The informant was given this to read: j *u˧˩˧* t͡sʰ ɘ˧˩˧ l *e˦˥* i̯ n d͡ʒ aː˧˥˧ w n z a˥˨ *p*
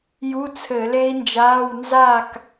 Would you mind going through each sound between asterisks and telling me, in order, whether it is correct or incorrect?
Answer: incorrect: u˧˥˧, correct, incorrect: k

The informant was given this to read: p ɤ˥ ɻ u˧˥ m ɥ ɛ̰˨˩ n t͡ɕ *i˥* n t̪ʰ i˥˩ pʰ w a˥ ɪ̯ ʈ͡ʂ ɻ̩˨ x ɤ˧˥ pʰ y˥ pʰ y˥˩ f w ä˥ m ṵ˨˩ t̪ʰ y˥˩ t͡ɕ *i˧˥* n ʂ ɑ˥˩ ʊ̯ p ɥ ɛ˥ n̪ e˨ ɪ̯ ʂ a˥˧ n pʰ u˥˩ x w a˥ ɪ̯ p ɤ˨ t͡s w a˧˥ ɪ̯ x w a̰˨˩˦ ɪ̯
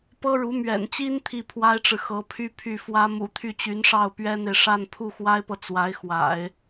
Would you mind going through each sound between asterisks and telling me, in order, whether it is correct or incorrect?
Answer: correct, incorrect: y˧˥

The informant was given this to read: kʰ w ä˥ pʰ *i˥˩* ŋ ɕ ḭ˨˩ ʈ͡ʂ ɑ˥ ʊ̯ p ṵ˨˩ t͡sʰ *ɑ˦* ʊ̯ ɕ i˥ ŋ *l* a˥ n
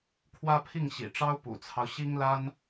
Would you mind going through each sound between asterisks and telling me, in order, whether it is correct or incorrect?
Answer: correct, correct, correct

